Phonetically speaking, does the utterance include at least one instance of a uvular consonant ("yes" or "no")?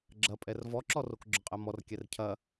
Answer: yes